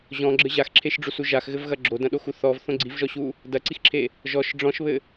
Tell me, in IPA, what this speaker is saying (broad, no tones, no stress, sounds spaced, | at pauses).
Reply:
ʑ ɔ̃ ɡ͡ǁ ɘ ʑ a x ǁʰ e ʃ ɖ͡ʐ u s u ʒ a x ɣ ɘ v ɣ ɐ ɡ͡ǁ o d ɐ̃ ɗ o x u θ ɔ v θ õ ɡ͡ǀ i v ʒ ɔ ɕ u | d ɐ ǀ i x ǁʰ e | ʒ ɔ ʃ ɖ͡ʐ ɔ̃ ʃ β ɘ